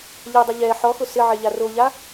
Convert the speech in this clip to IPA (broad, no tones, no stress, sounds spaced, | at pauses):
ʎ ɛ dˤ ɪ ʎ ɛ ħ ɔ x ʊ s ɪ ʕ e ʎ a r o ʎ a